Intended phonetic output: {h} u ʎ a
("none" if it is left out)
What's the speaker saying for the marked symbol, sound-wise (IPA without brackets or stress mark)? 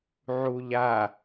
ʕ